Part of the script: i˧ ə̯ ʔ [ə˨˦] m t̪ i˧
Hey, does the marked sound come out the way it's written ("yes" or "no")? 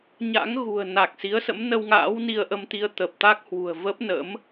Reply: no